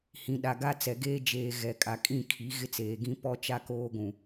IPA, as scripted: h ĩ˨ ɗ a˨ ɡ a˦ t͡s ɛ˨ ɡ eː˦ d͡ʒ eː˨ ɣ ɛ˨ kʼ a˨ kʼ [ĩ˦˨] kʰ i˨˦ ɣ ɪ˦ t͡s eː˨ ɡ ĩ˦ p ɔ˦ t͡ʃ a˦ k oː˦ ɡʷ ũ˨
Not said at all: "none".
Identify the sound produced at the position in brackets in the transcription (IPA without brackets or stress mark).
ĩ˦˨